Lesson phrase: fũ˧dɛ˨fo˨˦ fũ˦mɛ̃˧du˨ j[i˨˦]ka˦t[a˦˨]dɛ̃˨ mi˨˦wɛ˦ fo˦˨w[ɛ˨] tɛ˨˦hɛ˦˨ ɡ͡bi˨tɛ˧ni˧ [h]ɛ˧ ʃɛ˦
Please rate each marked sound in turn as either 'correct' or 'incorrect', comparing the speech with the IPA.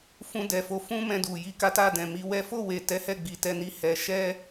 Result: correct, correct, incorrect: e˨, correct

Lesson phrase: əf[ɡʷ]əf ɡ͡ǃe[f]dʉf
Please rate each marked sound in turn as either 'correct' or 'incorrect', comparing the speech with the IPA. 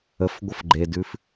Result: correct, incorrect: none

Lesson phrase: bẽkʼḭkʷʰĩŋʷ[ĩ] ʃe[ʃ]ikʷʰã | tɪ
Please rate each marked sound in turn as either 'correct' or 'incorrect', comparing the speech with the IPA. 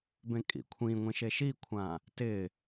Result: correct, correct

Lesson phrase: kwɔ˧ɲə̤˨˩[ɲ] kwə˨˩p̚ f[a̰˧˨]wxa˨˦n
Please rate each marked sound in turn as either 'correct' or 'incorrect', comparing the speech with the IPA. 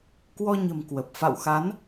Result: incorrect: m, correct

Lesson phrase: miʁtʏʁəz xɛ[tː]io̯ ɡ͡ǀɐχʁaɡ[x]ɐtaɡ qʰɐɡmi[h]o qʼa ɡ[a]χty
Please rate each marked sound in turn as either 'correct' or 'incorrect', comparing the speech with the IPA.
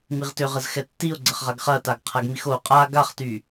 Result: correct, incorrect: χ, incorrect: x, correct

